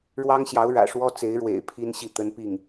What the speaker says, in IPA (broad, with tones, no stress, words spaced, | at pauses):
ɻwɑ˥ŋɕjɑ˧˥ʊ̯ ɻä̰˨˩ʂwɔ˥ t͡se˧˥ɪ̯ ɻwḛ˨˩ɪ̯ pʰi˥nɕi˥˩ t̪ə˥npi˥˩ŋ